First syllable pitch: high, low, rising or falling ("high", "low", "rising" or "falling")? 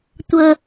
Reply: high